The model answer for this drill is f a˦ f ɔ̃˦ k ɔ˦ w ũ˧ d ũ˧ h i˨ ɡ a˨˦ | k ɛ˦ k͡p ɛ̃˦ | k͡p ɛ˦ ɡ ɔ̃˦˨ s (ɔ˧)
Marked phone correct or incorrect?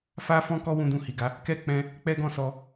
correct